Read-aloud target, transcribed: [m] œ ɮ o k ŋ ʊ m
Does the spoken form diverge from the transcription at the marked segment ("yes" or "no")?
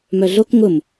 no